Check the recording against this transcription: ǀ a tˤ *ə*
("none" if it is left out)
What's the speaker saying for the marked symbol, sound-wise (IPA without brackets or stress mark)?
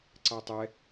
ɛ